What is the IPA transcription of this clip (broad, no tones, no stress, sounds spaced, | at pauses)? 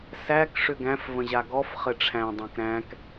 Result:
s æ k ʂ ʏ ɡ æ̃ f v ə̃ ʑ a ɡ ɔ f χ ɘ ʈ͡ʂʰ æ̃ dˤ æ̃ k ɾ æ̃ k